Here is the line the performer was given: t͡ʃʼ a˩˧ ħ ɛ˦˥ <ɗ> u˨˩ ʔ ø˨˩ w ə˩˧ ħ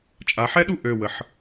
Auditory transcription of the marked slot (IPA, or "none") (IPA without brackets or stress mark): ɗ